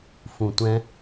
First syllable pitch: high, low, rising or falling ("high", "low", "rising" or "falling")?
low